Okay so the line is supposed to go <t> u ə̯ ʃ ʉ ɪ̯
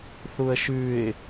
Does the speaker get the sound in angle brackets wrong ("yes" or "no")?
yes